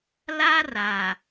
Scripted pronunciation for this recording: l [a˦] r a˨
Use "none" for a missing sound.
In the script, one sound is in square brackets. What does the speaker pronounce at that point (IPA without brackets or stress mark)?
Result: a˦